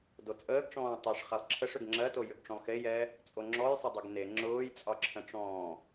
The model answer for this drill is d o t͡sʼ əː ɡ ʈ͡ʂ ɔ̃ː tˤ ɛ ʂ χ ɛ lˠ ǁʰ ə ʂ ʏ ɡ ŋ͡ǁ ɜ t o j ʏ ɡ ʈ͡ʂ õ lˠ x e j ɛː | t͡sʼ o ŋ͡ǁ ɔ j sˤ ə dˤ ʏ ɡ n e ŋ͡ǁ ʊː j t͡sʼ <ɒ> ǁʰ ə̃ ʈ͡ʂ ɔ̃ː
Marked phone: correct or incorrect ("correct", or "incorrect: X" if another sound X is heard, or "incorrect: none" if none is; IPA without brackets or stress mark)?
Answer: correct